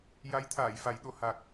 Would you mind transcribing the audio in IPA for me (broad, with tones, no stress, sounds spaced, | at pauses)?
j a˧˥ j t̪ʰ aː˨˩˨ j f a˨˩˦ j ɗ o˨˩˨ h a˨˩ k̚